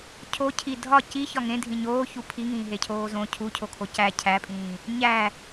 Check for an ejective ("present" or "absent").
present